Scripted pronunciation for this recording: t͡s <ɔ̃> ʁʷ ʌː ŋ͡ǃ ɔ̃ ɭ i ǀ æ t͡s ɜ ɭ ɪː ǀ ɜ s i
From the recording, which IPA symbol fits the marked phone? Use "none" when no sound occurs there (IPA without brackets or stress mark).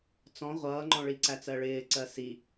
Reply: ɔ̃